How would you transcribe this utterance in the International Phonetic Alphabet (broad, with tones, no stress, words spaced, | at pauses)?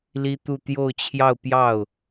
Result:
li˥t̪u˥˧ t̪jo˥˧ʊ̯ t͡ɕʰjɑ˥˧ʊ̯pjɑ˥˩ʊ̯